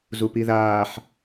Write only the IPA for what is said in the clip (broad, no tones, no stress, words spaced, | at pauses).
zupiðaːħ